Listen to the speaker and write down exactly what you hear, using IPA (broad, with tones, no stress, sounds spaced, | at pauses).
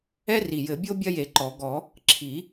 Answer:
ɛ˥ r i˨˩ j ɘ˨˩˦ bʲ o˥ bʲ ɐ˥ j e˨˩˦ ǃ ɔ˨˩˦ ɡ ɔ˨˩˦ | ǁʰ i˨˩˦